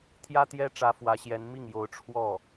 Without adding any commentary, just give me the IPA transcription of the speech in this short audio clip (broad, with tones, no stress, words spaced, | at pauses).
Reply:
t̪ʰjä˥t̪jɛ˥ʈ͡ʂä˧˥ fwä˧˥ɕjɛ˧˥n mi˥˩ŋjo˧˥ʊ̯ ʈ͡ʂʰwɔ˥˩